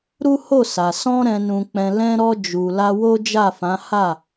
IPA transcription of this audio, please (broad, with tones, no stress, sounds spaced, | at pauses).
ɾ u˦ h o˦˨ s a˨ s ɔ̃˧ ɾ ɛ̃˨ n ũ˨ k͡p ɛ̃˨ l ɛ̃˧ ɾ ɔ˧ d͡ʒ u˨ l a˧ w o˦ d͡ʒ a˦˨ f ã˨˦ h a˦˨